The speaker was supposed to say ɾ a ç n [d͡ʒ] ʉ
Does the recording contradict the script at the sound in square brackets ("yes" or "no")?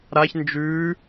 no